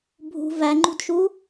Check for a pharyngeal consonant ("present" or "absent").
absent